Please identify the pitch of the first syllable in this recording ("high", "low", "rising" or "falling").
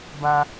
high